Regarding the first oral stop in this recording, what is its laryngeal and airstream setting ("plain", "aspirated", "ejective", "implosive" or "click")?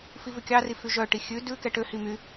plain